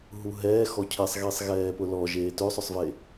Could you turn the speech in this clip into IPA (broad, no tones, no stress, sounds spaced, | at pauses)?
ɦ u ɦ ɛː x ɔ cʰ e sˤ ɣ i sˤ ɣ ɛː p ʊ l ɔ ʒ eː t ø sˤ œ sˤ v e